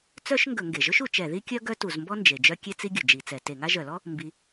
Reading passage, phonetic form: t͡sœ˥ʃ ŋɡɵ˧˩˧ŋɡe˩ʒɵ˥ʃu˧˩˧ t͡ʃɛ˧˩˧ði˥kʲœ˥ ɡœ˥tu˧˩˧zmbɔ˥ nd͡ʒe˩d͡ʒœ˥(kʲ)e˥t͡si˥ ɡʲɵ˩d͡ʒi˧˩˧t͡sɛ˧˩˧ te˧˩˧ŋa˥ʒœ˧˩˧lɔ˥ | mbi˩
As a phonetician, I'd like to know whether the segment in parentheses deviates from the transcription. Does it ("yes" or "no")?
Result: no